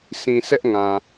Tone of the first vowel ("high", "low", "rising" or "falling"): low